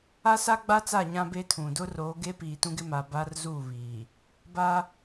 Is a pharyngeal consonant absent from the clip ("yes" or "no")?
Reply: yes